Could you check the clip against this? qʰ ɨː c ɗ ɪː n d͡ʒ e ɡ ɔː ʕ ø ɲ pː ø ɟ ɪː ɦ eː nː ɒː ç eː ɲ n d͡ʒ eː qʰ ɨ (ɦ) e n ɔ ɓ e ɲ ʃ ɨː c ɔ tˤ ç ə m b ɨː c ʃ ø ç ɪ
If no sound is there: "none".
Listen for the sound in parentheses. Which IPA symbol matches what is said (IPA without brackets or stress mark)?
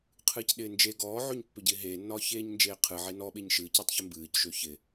ʕ